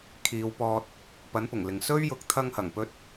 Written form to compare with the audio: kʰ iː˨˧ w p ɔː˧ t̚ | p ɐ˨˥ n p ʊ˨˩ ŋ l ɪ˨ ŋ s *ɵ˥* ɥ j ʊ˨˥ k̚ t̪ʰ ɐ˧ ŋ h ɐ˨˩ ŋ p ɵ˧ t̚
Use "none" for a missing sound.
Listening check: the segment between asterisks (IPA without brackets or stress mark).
ɵ˥